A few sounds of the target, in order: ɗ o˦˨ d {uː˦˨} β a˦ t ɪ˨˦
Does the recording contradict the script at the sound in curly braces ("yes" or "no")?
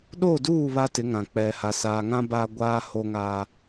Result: no